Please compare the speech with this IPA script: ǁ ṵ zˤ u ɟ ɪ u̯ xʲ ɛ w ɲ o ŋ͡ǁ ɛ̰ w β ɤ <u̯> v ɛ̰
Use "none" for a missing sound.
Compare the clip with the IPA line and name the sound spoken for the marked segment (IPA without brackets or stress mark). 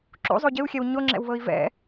i̯